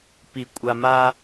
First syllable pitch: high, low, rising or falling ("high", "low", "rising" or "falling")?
low